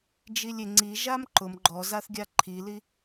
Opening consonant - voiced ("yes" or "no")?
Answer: yes